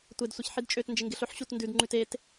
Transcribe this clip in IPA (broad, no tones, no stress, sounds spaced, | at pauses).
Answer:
tʷ e d sʷ e ç ħ i d t͡ʃʼ ø t n d͡ʒ ɪ ŋ ɡ ɪ ɬ ɵ ħ ɕ u t n d ʉ d ŋ͡ǃ ʉ t e t